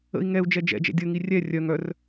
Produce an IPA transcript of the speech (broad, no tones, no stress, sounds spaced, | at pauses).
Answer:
ə̰ i̯ ŋ ɛ u̯ d͡ʒ ɛ d͡ʒ ɛ̰ d͡ʒ ɛ̰ dʲ ə ŋ i rʲ ɛ rʲ œ ŋ œ r